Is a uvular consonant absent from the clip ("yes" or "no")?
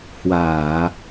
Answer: yes